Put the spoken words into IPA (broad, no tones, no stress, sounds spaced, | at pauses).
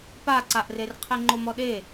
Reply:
p a ǀ a ʔ r e r qʰ e ŋ͡ǃ o m ɔ ɗ e